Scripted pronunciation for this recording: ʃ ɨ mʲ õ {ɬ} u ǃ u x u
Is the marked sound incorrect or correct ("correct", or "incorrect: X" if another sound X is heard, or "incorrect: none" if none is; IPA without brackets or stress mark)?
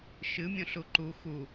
correct